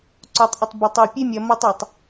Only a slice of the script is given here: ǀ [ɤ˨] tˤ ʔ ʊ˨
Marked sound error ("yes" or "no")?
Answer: yes